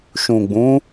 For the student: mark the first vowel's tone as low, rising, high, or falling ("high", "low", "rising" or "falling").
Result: low